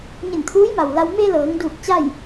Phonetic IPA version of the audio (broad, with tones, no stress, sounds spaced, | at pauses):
ɲ e˧˩ n t̪ʰ uː˧˥ j m a˩ w l a˧ w m e˧ l ɤː˩˧ ŋ d uː˧˩ k̚ t͡ɕ a˥˨ j